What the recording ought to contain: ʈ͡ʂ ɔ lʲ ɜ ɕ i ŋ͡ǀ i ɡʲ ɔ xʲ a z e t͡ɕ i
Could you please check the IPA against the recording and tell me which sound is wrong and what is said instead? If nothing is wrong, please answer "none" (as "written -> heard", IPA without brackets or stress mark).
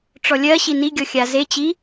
ŋ͡ǀ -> n